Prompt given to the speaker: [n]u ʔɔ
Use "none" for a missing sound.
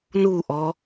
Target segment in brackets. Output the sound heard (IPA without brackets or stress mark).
n